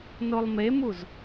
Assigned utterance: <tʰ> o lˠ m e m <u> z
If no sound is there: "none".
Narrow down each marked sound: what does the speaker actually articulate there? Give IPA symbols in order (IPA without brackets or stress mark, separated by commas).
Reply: n, u